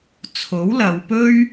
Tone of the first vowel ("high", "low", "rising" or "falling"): rising